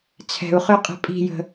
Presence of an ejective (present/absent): present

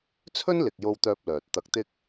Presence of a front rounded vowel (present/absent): present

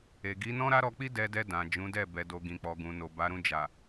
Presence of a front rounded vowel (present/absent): absent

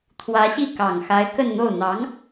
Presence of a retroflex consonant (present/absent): absent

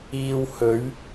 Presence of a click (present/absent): absent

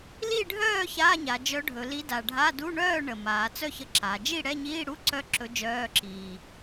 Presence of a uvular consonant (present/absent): absent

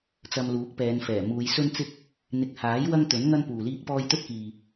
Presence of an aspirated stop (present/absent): absent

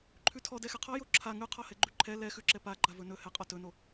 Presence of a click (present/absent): present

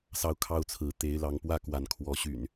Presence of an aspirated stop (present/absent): present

